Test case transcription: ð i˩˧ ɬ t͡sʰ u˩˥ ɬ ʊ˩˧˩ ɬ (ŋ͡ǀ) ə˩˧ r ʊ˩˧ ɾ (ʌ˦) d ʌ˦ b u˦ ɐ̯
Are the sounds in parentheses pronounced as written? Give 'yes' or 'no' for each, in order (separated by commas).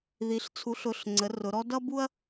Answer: yes, no